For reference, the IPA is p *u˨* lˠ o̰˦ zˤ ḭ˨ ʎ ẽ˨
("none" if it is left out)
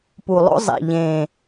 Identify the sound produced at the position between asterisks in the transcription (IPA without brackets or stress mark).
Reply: u˨